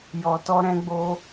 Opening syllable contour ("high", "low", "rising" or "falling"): low